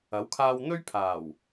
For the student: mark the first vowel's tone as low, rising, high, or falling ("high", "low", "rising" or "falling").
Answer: rising